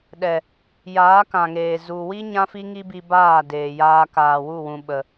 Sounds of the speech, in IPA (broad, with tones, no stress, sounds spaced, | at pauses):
ɗ ɛ˨ | j aː˨˦ k ã˨ ŋ eː˨ z u˨ w i˦ ɲ ã˦ f i˦ ŋ i˦ b i˧ b aː˦˨ d eː˨ j aː˧ k aː˨ w u˦˨ w ũ˨ ɓ ə˨